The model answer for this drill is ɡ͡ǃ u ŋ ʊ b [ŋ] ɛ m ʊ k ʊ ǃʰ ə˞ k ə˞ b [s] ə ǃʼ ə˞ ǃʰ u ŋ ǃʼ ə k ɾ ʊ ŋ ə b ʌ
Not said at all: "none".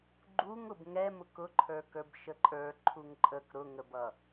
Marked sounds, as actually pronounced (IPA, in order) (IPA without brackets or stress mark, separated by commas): ŋ, ʃ